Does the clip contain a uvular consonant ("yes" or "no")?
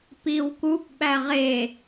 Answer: yes